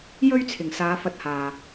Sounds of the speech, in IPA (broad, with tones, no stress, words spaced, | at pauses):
jɵ˥ɥt͡sʰɪ˨˩ŋsaː˨˧ fɐ˧t̚haː˨